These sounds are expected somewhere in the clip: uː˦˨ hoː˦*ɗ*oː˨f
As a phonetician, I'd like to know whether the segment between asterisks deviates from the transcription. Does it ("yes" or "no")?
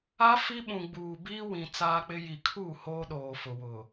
no